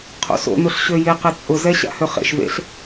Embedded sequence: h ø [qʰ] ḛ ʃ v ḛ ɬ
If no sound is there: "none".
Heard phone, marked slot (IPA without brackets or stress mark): χ